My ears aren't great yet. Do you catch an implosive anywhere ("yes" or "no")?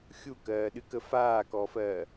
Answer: yes